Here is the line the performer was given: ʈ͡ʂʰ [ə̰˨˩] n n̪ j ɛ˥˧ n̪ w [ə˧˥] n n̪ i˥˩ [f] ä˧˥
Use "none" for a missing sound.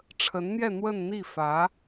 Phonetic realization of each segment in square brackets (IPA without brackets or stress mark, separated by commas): ə˧˥, ə˥˧, f